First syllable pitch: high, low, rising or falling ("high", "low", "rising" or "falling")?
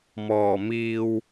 low